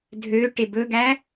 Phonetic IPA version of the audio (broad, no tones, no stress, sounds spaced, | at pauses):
dʱ ø ʈ e b ɵ ɡ æ